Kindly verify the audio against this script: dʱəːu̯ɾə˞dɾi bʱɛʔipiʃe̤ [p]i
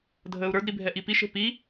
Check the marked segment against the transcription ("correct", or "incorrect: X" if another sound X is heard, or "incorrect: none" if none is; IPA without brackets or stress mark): correct